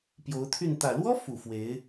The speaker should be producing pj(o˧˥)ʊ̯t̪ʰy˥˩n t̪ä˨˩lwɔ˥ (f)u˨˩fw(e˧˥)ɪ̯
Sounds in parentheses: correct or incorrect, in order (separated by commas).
correct, correct, correct